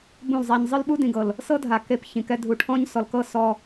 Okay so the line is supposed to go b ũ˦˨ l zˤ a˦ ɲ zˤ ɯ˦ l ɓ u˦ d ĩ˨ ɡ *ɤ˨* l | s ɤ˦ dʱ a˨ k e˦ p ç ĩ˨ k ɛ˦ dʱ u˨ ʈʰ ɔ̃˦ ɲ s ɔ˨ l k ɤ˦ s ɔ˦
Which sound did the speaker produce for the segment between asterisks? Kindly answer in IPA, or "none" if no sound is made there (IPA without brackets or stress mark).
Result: ɤ˨